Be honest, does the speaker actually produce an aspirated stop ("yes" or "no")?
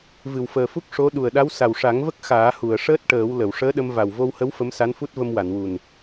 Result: no